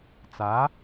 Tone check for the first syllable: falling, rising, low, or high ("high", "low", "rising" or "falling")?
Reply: rising